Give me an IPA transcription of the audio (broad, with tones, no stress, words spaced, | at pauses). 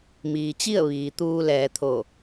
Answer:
miː˩t͡ɕi˥˨ə̯ ʋiː˩ t̪uː˧lɛː˩˧t̪ʰo˧˩